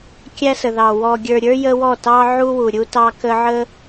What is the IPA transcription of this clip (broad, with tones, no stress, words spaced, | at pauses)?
kʲæ˦sə˨ðɑ˨ wɔ˨ɡʲə˞˨ɾʲə˞˦jə˧ wɔ˦˨tɑ˦ʕu˦wu˨ ɾʲu˦tɑ˦ kə˦ ʕə˦